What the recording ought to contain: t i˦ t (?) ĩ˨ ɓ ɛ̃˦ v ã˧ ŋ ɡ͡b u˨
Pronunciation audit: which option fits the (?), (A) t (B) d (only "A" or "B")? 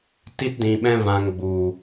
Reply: B